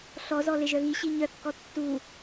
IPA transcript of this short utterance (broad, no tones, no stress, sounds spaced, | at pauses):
ɬ ɔ z ɔ l e ʒ œ ɣ i ɕ i ɲ œ kː ɔ tː u